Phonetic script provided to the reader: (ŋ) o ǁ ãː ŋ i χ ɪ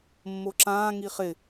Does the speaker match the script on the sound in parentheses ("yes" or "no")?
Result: no